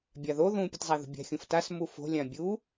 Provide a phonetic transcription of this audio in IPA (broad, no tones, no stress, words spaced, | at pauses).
bʲaðo ðũ pʲɯtzˤaðṳbʲa̤ xʲũftas mufo̤ lʲãbʲu